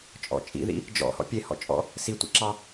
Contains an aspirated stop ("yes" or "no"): no